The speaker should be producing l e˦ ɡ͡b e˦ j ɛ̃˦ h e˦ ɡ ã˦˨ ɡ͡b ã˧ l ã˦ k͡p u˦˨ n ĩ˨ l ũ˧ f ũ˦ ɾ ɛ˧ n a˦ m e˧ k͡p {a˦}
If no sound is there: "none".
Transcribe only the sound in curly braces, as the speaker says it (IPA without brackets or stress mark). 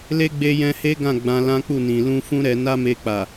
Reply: a˨